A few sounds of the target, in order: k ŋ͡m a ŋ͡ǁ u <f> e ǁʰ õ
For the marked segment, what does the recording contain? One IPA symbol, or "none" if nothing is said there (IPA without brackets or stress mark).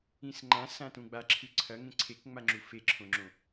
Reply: f